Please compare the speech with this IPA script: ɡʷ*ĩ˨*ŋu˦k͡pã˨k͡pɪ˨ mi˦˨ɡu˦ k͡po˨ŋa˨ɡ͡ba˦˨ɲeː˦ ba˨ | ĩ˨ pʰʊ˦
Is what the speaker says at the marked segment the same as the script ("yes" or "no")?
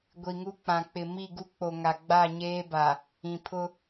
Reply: no